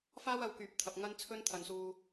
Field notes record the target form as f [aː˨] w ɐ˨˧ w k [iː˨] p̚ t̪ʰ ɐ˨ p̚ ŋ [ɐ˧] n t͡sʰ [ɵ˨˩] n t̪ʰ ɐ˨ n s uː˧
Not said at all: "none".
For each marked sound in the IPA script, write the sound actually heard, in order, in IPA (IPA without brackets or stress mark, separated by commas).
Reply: aː˥, yː˨, ɐ˥, ɵ˥